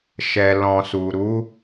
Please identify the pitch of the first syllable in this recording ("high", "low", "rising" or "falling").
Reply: low